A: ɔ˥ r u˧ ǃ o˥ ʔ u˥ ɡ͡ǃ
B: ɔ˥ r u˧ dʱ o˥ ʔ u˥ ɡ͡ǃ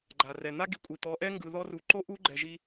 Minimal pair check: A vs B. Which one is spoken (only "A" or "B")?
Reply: A